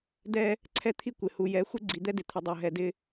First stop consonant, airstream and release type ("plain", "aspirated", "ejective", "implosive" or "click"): plain